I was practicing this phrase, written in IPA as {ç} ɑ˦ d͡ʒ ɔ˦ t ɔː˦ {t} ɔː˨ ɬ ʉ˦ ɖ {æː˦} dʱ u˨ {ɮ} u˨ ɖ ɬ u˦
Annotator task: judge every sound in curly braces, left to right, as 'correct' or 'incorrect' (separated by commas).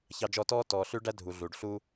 correct, correct, incorrect, correct